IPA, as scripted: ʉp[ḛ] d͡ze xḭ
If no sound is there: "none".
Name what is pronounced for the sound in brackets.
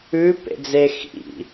ḛ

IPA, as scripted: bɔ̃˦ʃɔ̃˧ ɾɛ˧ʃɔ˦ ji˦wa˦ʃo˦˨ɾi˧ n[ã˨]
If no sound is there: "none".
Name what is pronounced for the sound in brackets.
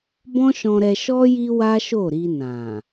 ã˨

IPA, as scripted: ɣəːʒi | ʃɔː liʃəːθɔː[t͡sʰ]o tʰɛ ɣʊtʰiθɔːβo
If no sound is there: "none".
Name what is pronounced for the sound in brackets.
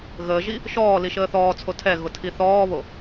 t͡sʰ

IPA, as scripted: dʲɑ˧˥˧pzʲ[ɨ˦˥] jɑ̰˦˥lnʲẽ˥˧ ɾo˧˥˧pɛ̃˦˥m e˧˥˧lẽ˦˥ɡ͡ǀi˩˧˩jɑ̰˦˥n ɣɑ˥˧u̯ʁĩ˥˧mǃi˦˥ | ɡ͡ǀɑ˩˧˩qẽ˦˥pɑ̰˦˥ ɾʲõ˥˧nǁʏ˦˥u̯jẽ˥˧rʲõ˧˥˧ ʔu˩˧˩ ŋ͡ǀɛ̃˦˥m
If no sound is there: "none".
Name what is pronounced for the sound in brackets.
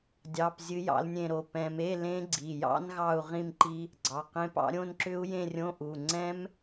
ɨ˦˥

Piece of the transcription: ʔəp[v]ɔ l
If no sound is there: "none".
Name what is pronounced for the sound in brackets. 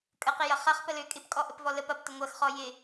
v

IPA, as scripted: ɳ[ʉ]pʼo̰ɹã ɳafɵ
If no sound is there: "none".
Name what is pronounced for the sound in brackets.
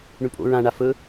ʉ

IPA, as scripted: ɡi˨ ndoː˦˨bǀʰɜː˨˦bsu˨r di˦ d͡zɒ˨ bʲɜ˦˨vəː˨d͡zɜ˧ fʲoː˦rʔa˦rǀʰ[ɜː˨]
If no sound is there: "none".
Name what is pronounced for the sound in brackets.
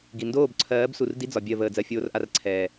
ɛː˨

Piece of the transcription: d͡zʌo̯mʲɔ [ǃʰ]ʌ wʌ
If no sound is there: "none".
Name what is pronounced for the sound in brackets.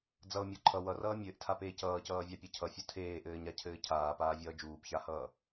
ǃʰ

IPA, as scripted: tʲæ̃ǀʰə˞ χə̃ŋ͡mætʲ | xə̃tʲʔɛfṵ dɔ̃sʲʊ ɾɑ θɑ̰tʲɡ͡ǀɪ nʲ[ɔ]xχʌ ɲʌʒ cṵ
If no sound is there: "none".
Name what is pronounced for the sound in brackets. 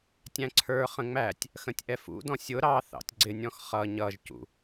ɔ̃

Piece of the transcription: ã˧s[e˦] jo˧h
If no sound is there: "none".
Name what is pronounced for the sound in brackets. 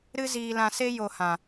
e˦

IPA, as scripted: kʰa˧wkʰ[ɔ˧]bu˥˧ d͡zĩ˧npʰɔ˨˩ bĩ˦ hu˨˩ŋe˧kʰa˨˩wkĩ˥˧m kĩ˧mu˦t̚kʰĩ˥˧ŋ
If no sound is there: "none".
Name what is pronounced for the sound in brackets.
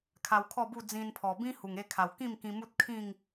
ɔ˥˧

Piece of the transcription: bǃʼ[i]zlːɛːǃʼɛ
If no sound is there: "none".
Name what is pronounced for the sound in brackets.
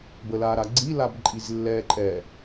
i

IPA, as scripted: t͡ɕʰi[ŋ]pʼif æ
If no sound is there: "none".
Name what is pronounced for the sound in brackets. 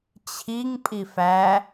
ŋ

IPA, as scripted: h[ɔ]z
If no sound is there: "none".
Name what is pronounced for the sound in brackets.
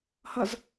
ʌ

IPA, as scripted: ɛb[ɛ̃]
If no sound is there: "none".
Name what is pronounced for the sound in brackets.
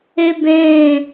ɛ̃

